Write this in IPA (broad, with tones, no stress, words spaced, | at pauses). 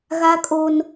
ɣa˦kʼo˦n